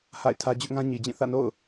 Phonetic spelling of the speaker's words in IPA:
h a̰˦˨ ɪ̯ tʰ ä˦ d͡ʑ ʊ˦ ʔ ŋ ã˦ ɲ i˨ d͡ʑ ĩ˦˨ θ ä̰˦˨ n o̰˦˨ ʊ̯

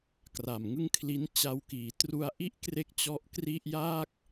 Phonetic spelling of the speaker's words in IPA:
k r a˨˩ m ŋ ɯ˥˩ ŋ kʰ l i˦˥ n t͡ɕ a˧ w k iː˩˦ t r u˧ a̯ ʔ i˦˥ ʔ k r e˥˩ k̚ t͡ɕ ɔ˦˥ ʔ k r i˥˩ ʔ j aː˥˩ k̚

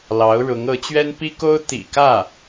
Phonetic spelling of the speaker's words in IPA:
l ɑ˧˥ ʊ̯ ɻ ʊ˧˥ ŋ ɤ˧˥ t͡ɕ ɥ ɛ˥ n p i˥ k o˥ ʊ̯ t̪ ḭ˨˩ k ä˥˩

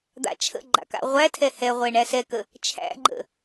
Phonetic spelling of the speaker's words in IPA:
d̪ a̰ t͡ʃʰ ə̰ ɡ͡ǃ a̰ k a̰ ʁʷ æ tʰ ɛ h ɛ ʁʷ ɛ ɳ æ s ɛ k ə | t͡ʃʰ æ̰ ɡ͡ǃ ə̰

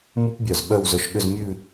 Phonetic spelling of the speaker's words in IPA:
m u˥ p bʲ œ˧˩ z ɓ œ˥˧ w z œ˧ ʃ ɠ ʏ˥˧ z mʲ ʉ˥˧

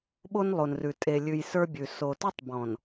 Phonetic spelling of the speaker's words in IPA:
ɓ o˦ n lˠ o˨ n r ʉ˨ tʼ e˨ lʲ ʉ˨ j s ə˞˦ bʲ ʉ˨ s o˨ t ə˞˦ tˤ b ɔ̃˨ n

